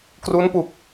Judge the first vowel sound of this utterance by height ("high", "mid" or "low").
high